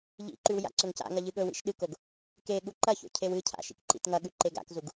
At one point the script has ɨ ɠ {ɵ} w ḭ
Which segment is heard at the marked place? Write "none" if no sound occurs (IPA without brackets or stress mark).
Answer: ɵ